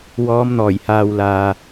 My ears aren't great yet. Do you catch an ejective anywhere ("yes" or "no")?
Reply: no